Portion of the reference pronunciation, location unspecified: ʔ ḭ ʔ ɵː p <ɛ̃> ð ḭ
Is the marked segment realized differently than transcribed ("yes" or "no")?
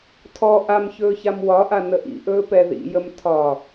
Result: yes